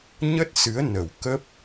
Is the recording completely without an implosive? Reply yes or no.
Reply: yes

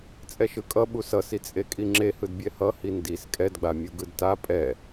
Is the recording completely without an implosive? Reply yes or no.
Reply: no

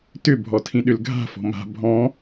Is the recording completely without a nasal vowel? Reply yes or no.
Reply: no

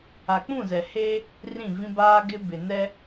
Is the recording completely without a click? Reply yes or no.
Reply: yes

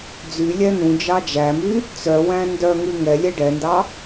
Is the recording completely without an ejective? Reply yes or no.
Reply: yes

